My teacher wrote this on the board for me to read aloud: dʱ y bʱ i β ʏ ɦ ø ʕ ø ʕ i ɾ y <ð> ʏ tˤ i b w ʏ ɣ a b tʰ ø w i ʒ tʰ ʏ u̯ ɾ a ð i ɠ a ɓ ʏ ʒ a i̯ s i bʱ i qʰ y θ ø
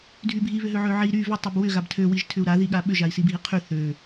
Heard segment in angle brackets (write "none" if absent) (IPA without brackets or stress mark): v